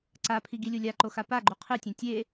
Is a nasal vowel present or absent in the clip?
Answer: present